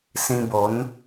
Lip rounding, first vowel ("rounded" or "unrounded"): unrounded